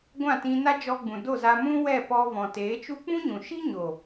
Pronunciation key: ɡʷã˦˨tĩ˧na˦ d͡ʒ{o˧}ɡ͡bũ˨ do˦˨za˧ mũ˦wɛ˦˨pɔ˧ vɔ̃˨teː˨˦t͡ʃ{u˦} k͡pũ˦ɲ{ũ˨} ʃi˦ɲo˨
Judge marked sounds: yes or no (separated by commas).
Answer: no, yes, yes